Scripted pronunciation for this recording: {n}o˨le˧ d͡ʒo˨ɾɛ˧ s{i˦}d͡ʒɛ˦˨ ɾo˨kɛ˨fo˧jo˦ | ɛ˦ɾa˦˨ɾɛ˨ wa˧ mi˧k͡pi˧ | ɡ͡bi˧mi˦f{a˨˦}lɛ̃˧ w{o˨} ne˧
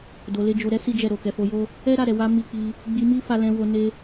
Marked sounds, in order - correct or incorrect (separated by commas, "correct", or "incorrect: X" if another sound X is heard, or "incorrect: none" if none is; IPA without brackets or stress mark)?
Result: incorrect: d, correct, incorrect: a˧, incorrect: o˧